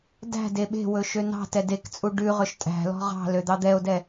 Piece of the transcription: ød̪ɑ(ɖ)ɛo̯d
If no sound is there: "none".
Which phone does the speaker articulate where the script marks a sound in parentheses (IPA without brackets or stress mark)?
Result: d̪